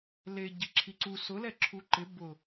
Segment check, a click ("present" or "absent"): present